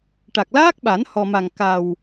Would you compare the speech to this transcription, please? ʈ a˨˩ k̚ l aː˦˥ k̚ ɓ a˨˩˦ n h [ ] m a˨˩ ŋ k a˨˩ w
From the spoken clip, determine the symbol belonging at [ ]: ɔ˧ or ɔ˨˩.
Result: ɔ˨˩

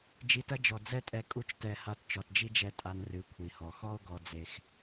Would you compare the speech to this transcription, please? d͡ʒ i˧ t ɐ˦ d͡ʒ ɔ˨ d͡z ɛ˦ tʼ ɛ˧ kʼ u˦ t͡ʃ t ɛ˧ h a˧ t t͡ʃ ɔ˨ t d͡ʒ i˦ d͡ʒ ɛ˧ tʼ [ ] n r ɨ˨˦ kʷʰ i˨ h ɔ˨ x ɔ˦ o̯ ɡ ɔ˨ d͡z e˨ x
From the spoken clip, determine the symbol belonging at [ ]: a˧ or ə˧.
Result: a˧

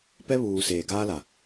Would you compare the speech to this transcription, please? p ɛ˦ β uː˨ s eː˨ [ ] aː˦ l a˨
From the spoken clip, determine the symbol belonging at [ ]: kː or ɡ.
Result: ɡ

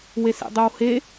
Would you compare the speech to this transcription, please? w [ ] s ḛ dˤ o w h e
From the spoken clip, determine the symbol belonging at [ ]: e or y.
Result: e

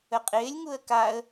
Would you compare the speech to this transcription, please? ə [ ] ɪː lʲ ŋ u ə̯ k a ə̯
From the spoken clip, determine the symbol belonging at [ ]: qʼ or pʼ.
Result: qʼ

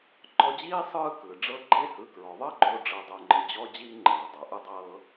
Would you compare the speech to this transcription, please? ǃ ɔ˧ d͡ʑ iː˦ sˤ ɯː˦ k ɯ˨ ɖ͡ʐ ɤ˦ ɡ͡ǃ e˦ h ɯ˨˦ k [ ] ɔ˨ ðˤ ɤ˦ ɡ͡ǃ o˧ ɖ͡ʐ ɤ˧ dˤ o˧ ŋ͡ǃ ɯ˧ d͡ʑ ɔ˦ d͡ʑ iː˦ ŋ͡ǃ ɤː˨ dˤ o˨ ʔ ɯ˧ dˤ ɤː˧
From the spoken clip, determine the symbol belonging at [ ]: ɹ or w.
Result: ɹ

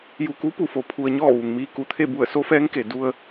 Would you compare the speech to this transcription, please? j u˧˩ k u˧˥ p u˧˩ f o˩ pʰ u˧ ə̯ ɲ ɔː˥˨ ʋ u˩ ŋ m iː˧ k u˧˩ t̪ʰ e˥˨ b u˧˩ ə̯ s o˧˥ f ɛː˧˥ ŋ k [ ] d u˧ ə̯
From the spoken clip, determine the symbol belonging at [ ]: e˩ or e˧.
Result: e˩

